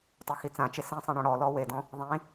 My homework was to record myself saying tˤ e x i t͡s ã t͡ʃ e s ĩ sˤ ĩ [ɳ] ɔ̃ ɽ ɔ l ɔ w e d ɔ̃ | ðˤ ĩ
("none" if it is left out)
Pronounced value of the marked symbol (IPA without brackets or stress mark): ɳ